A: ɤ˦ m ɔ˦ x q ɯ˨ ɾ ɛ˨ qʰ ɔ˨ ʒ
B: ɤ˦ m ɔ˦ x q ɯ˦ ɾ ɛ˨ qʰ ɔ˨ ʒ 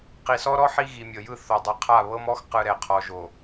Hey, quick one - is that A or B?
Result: A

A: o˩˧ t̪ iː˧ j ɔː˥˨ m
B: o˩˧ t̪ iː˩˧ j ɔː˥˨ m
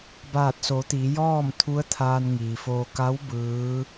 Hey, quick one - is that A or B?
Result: B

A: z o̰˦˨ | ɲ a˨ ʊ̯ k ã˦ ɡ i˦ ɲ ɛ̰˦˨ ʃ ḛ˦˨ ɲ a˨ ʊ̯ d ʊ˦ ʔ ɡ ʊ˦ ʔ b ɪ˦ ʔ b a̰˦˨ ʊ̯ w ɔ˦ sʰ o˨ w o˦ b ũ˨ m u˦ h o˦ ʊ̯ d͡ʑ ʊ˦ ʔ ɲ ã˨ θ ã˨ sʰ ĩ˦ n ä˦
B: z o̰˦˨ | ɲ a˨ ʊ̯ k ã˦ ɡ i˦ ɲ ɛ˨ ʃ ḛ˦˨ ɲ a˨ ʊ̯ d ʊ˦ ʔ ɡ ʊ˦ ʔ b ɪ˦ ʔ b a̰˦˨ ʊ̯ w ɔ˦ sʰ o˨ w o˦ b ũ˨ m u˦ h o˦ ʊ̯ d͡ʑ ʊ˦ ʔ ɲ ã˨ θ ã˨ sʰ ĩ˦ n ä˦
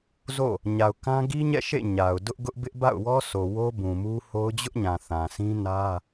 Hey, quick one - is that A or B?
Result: A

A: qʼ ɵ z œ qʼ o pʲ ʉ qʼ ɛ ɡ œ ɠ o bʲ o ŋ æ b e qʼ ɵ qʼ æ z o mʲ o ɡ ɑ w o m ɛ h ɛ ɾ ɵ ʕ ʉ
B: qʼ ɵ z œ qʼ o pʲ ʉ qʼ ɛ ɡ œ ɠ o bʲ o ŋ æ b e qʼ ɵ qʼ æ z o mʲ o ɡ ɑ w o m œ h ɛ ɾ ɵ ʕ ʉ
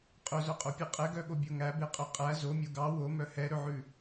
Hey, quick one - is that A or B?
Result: B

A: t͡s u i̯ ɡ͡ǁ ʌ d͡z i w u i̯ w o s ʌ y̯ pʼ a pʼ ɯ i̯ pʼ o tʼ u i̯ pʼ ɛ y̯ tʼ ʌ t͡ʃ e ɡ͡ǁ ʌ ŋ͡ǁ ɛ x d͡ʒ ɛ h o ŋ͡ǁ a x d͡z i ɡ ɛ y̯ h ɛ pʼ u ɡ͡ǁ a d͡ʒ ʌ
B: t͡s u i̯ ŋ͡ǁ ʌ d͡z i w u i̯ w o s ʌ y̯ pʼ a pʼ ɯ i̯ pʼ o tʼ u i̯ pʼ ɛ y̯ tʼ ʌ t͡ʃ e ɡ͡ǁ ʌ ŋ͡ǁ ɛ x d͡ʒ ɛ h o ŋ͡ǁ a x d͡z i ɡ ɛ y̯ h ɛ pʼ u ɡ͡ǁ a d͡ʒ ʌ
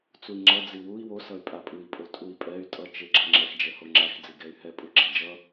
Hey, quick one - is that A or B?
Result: B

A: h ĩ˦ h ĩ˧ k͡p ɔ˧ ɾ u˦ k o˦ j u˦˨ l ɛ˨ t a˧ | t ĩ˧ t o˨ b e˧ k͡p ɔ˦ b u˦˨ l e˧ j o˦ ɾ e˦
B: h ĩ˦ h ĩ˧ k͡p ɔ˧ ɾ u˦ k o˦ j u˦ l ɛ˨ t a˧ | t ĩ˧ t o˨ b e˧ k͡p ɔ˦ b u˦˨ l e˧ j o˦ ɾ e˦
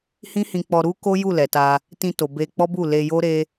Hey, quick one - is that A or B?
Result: A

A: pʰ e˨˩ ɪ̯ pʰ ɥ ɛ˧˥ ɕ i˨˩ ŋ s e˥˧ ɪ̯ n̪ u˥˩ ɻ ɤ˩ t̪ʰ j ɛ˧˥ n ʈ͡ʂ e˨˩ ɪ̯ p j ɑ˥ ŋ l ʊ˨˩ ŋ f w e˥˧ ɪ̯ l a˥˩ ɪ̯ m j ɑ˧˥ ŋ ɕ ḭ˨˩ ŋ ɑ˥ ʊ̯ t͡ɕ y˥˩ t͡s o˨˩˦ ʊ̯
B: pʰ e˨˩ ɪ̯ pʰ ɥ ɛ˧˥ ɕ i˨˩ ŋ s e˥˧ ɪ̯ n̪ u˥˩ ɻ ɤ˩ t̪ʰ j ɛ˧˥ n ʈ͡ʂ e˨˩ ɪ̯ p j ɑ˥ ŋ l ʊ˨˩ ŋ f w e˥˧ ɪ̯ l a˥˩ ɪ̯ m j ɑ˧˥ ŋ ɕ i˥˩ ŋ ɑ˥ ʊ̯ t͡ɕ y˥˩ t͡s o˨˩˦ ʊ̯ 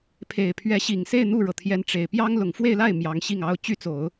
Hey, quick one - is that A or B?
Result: B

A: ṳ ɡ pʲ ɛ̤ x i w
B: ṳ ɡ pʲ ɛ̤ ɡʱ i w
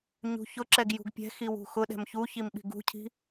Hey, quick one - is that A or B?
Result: A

